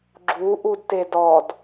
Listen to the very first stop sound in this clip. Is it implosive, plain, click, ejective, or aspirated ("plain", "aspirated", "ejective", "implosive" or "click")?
click